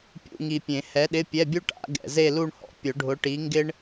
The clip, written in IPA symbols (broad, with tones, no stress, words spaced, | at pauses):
pʲṵ˧˥˧ŋi˨pʲẽ˨˩˦ hɛ˨˥ɗɪ˧˥˧pʲɛ˧˥˧bʲu˥ ʈa̰˨˩˦ɡɛ̰˨ ze˥˧lu˥˧ɳhɔ̰˨ pʲʊ˨˩˦ɖʱʊ˨˥ ʈi˨˥ŋɡɪ˥ɳ